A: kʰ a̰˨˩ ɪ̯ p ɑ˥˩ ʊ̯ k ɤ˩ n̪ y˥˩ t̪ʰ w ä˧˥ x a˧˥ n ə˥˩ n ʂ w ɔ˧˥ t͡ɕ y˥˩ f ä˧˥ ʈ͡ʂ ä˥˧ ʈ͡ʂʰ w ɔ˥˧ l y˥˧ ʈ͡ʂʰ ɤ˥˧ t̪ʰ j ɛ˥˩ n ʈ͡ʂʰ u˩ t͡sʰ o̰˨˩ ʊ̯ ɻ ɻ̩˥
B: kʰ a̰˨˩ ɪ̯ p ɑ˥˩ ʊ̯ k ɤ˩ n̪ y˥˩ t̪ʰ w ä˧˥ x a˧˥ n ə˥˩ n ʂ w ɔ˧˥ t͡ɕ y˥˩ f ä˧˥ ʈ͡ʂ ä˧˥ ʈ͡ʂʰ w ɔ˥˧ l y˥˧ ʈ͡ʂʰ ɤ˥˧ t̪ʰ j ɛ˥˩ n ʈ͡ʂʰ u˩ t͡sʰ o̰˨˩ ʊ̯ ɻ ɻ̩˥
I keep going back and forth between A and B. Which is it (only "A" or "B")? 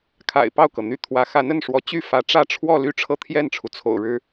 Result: A